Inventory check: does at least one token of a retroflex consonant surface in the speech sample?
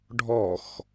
yes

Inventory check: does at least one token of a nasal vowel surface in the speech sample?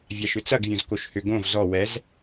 yes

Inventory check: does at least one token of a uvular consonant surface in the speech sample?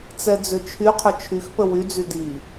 yes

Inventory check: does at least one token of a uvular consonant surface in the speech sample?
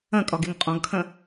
yes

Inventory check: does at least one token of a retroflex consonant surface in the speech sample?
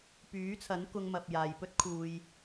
no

